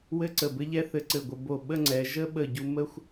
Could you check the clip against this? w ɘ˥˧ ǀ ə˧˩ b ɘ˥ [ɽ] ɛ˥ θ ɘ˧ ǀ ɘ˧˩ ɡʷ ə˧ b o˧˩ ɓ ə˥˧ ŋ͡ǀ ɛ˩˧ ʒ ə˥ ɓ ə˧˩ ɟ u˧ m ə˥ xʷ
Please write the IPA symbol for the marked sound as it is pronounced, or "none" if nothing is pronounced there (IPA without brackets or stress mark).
ʎ